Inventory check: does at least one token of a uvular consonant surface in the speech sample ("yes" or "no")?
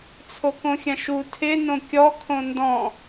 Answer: no